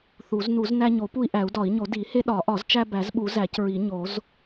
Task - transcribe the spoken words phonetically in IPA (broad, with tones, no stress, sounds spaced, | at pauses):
θ u˨˩˦ z n u˨˩˦ z n æ˦ ɲ o˨˩˦ p u˦ i̯ ʔ æ˨˩˦ u̯ d ɒ˨˩˦ i̯ ɲ o˨˩˦ d i˨˩˦ h e˦ ɗ ɒ˨˩˦ ʔ ɒ˨˩˦ z t͡ʃ æ˦ b æ˨˩˦ z ɓ u˨˩˦ z æ˨˩˦ c ɹ i˨˩˦ ɲ o˨˩˦ z